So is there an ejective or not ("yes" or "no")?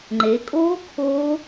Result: yes